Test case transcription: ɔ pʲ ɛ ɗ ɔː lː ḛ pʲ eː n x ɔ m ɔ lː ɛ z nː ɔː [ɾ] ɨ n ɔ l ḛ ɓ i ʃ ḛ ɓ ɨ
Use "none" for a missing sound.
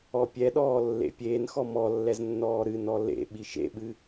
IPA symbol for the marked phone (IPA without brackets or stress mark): ɾ